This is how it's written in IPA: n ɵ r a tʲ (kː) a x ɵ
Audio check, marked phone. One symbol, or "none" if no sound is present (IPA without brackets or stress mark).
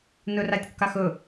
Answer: kː